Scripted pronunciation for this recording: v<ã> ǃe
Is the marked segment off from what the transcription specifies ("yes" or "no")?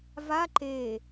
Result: yes